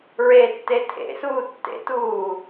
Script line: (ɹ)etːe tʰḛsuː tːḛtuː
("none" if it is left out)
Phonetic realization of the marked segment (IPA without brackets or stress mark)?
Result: ɹ